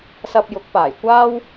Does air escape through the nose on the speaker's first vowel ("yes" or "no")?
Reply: no